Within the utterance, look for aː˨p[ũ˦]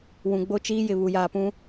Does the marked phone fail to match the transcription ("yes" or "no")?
no